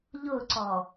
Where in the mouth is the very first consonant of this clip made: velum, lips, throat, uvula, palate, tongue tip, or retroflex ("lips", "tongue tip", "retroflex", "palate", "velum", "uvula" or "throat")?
palate